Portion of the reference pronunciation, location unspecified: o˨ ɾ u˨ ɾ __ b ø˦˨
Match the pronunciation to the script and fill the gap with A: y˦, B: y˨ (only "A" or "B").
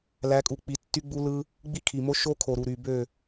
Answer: B